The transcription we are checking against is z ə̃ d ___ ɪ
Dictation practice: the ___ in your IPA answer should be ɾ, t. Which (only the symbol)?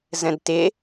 t